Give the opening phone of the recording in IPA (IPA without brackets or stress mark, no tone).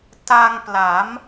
t